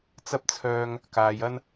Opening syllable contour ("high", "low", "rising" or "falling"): high